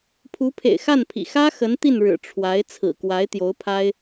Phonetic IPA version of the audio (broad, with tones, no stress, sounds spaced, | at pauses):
pʰ u˧˥ pʰ ḛ˨˩ ɪ̯ x a˥˩ n pʰ ḭ˨˩ x ä˥ x ə˧˥ n t̪ i˥˩ n ɻ ɻ̩˨˩ ʈ͡ʂʰ w a˧˥ ɪ̯ t͡sʰ ɹ̩˨˩ k w a˧˥ ɪ̯ t̪ j o˧˥ ʊ̯ pʰ a˥ ɪ̯